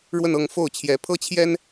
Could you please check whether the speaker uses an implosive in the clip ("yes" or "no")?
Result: no